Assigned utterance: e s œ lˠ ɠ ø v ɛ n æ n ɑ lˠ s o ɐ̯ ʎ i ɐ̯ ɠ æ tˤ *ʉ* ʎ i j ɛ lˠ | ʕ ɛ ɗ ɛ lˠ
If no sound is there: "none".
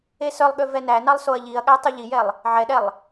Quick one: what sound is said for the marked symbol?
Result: ʉ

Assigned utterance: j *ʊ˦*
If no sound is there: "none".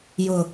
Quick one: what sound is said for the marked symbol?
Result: ʊ˨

